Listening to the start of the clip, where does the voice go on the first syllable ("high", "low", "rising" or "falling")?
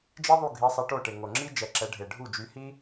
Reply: high